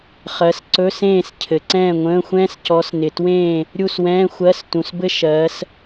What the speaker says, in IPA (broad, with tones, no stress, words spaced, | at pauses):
χɜ˨˦sǀɵ˧˥˧sẽː˥˨s cʰɘ˨ǀɛ̃ː˥˨ŋʷə̃ː˧˥˧xʷɛ̃ː˥s cɔ˨˦snɪ˨twẽː˥˨ | ɾʲu˥˨swɛ̃ː˧˥˧xʷɜ˧˥˧s tũ˨sbɘ˥ ʃɜː˨˦s